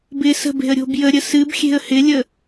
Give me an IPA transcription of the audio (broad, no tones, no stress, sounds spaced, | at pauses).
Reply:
b ɪ s ə̤ b e̤ ə̯ ɾʲ o̤ b j ə ɾʲ ə s ɨ b xʲ e̤ ə̯ h ɪ lʲ ə